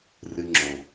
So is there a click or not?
yes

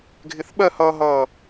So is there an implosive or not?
yes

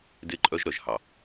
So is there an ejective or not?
yes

